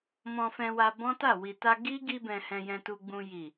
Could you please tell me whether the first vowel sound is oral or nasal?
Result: nasal